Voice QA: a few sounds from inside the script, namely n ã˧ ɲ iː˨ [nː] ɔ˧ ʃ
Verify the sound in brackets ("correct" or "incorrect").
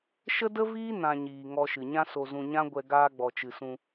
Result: incorrect